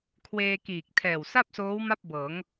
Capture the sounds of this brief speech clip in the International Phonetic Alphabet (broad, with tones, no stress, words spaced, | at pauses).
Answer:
kʰweː˧kiː˨˩k̚ tʰɛː˨˩wsa˥˩p̚soː˦˥w ma˥˩p̚bɤː˩˦ŋ